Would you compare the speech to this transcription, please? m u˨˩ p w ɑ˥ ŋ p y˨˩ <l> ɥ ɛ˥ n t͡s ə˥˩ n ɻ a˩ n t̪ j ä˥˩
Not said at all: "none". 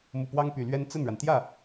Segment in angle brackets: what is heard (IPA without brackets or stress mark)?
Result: l